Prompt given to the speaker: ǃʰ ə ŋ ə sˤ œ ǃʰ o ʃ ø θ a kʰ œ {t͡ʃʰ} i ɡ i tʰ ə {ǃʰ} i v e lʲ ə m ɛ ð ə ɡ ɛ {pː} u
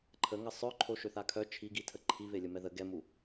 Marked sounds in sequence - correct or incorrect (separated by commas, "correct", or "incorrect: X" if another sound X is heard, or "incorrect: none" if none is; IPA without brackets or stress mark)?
correct, correct, incorrect: m